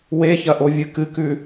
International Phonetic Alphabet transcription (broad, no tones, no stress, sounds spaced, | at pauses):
w e ç ɐ ʔ o vʲ ɨ k ɨ k ʉ